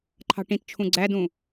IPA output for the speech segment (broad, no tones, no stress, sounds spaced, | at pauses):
ǃʰ ɑ̤ ʈ ĩ t t͡ʃʰ ũ ɡ͡ǀ æ d ũ